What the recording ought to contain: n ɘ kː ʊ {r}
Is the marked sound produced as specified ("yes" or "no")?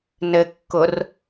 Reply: yes